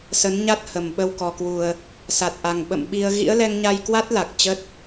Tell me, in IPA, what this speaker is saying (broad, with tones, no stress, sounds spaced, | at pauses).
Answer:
s ə˨˦ n ɲ a˦˥ t̚ h ə˨˩ m ɓ ə˧ w k ɔ˨˩ k w u˨˩ ə̯ | s a˨˩ t̚ ʔ a˨˩ ŋ ɓ ə̰˧˨ m ɓ i˧ ə̯ ɣ ḭ˧˥ ə̯ l ɛ˧ ŋ ɲ a˧ j k w a˦˥ t̚ l a˨˩ k̚ t͡ɕ ə˦˥ t̚